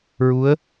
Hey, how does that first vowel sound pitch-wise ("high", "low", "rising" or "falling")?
rising